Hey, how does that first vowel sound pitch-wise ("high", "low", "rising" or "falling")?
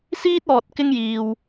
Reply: high